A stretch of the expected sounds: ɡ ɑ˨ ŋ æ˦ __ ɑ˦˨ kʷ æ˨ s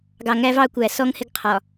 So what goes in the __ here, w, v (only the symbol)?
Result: v